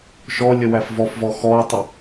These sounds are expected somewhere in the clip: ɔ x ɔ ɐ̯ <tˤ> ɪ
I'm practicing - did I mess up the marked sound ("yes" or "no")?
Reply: no